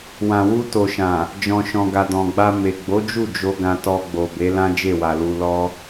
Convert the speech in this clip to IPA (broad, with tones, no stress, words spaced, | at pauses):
wã˨wu˧to˨ʃã˨ | d͡ʒɔ̃˨ʃɔ̃˨ɡa˨ dɔ̃˨ɡ͡ba˧ me˨ɡ͡bo˨˦d͡ʒu˦˨ d͡ʒo˧ ɡã˧tɔ˧ ɡ͡bo˨be˨˦lã˦ d͡ʒe˦˨wa˨lu˧lɔ˦